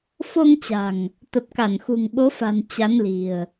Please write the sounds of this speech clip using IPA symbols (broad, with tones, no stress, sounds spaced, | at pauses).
f o˧ ŋ t͡ɕ a̤˨˩ ŋ | t̪ ə˨˩ p̚ k a˧˩ n x ṳ˨˩ ŋ ɓ o˨˦ f a̤˨˩ n t͡ɕ a˨˦ n l i̤˨˩ ə̯